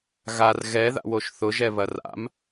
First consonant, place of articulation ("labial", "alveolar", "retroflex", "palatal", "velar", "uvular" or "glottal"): velar